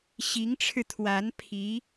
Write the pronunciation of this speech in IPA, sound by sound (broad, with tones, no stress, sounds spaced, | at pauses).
ɕ i˧˥ ŋ ʈ͡ʂʰ ɻ̩˧ t̪ʰ w a˧˥ n pʰ i˧˥